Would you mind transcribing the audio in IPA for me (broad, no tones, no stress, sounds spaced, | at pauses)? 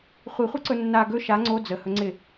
χʷ i χʷ ɯ ǀ ɵ nː a ɡ ɵ ʃ a ŋ͡ǀ o d͡z ə h ɵ ŋ͡ǀ ɪ